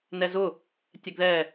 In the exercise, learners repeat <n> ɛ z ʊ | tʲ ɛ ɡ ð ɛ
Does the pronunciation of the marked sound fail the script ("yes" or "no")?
no